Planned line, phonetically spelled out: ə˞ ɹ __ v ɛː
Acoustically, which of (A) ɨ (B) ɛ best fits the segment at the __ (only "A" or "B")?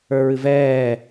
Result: A